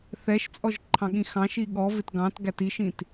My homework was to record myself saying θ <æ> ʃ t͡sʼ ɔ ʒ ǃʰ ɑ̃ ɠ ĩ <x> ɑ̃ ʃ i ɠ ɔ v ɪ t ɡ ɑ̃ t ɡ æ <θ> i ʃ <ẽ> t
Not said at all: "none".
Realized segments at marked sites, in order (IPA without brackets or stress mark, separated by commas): ɛ, x, t, ĩ